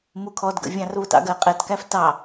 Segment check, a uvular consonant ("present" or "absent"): present